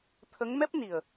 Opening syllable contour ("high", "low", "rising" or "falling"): rising